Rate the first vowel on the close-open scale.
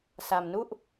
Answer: open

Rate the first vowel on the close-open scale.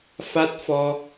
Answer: open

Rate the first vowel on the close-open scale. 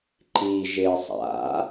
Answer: close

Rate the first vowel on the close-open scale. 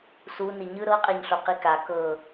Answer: close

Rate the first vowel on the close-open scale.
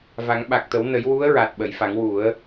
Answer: open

